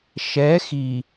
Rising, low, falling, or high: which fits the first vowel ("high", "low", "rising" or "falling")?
rising